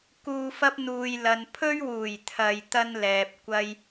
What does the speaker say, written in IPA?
k uː˧ f ɐ˥ p̚ n̪ uː˨ j l ɐ˨ n pʰ ɵ˥ ɥ w uː˨˩ j t̪ʰ ɐ˨ j t̪ ɐ˥ n l ɛː˨ p̚ kʷ ɐ˥ j

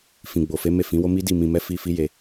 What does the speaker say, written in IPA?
f ĩ˨ ɡ͡b o˨ f e˨˦ m e˦˨ f ĩ˨˦ w o˦ m i˦ d i˦˨ m ĩ˧ m ɛ˦ f i˧ f i˦ j e˧

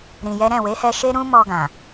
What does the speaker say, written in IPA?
ɾ ĩ˧ j ɛ˦ ɾ ɛ̃˦˨ w e˨˦ h ɛ˧ ʃ e˦ ɾ ũ˦ m ɔ˧ ɡ ã˨

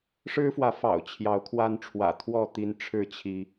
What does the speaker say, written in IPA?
ʂ ɻ̩˦ f w ä˨˦ f ɑ̰˨˩ ʊ̯ t͡ɕʰ j ɑ˨˦ ʊ̯ kʰ w a˦ n ʈ͡ʂʰ w ä̰˨˩ t̪ʰ w ɔ˥˨ t̪ i˦ n ʈ͡ʂʰ ɻ̩˥˨ t͡ɕʰ i˨˦

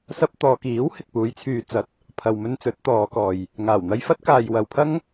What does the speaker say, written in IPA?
s ɐ˧ p̚ t̪ ɔː˨ k iː˨˥ w h ɪ˨ k̚ p uː˨˧ j t͡sʰ yː˧ t͡s ɐ˨ t̚ | pʰ ɐ˨ w m ɵ˧ n t͡s ɵ˨˥ t̚ t̪ ɔː˨˧ k ɔː˨ j | ŋ aː˨˩ w n̪ ɐ˧ j f ɐ˥ t̚ k aː˨ j w ɐ˨ w pʰ ɐ˥ ŋ

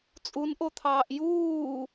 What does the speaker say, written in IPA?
t͡sʼ u n ʔ o t̪ʰ ɑː ʔ j uː

